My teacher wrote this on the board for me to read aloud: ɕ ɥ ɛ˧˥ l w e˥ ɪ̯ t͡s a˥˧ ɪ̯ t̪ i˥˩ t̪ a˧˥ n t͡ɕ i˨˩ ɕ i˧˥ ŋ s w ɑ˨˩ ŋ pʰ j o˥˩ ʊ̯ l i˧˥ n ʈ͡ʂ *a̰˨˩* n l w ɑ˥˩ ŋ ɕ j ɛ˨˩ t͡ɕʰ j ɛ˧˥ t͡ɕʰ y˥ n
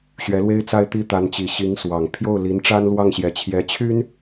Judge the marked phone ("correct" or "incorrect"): incorrect